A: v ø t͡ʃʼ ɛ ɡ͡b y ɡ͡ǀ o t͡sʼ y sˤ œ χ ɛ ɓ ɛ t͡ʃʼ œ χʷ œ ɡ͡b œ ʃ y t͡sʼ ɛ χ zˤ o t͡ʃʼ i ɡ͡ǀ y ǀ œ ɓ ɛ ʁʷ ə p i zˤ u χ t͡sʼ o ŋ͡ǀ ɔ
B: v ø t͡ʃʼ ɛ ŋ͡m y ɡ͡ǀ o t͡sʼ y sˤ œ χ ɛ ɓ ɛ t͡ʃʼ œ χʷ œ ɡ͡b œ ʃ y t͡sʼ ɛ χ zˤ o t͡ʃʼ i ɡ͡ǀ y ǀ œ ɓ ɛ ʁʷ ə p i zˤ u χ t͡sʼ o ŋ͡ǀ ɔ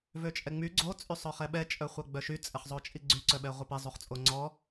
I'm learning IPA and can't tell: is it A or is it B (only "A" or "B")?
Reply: B